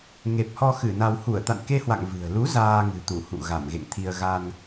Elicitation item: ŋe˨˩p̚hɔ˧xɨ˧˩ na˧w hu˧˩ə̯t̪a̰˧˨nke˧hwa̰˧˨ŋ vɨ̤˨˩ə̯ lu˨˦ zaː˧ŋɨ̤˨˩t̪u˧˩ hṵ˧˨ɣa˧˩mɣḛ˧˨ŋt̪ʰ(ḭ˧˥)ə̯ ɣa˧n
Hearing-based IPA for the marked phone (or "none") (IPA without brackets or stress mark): i˧